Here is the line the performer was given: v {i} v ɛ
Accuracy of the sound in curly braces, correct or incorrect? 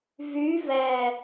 incorrect